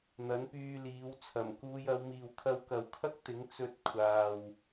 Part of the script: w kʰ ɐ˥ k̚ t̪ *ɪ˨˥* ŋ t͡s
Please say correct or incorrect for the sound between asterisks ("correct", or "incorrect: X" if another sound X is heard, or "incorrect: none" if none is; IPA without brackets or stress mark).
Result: correct